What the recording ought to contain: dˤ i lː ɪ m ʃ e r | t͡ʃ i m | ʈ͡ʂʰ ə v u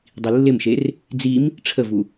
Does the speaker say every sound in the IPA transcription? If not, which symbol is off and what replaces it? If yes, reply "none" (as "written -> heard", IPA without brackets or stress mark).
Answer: t͡ʃ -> d͡z